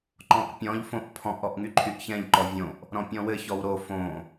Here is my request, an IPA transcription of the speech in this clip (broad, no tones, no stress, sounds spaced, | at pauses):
ǃ ɔ̃ ʔ pʲ ɔ̃ ʎ f õ ʔ pʰ ɔ̃ ʔ ɔ ʔ ŋ y ǃʰ y ʔ ç ɛ̃ ʎ ǃ ɔ vʲ õ ʔ | ɾ ɔ̃ pʲ ɔ̃ w ɘ ç ɔ w ɾ o f õ